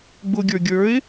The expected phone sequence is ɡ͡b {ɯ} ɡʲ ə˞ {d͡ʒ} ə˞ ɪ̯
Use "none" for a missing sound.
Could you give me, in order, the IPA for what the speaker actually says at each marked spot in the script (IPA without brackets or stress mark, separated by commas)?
ʊ, ɡʲ